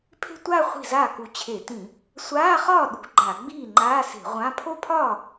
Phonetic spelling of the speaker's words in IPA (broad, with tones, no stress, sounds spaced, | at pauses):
pʰ e̤˥˧ tʷ aː˥˧ χʷ i̤˥˩ z aː˥˩ k u˨˦ t͡ɕʰ e˧˩˧ t ĩ˧˩˧ | sʷ aː˧˥˧ χ ɒː˥˩ ɗ ṳ˧˩˧ ɡ͡ǃ a˧˩˧ ɡ͡b iː˥˩ ŋ͡ǃ aː˧˥˧ s e̤˧˩˧ ʁʷ ã˧˥˧ pʰ o˥˩ pʰ ɒː˥˩